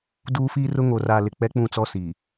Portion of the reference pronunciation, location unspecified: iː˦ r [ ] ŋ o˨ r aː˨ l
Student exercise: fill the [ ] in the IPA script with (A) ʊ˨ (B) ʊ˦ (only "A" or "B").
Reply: B